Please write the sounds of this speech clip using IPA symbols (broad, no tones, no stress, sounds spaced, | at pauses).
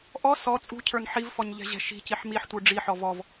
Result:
ʔ ɔ s ɔ t͡sʼ ṳ cʰ ə˞ n ħ i v f ɔ ɲ ʎ ɛ̤ ʑ ɛ̤ ʃ i̤ c i ħ m i ħ tʷ ə˞ ɖ͡ʐ i ħ ɔ v ɔ v